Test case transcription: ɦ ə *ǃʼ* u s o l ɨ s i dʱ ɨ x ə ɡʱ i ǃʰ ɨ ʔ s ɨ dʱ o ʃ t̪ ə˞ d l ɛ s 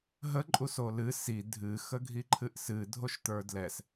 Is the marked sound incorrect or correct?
correct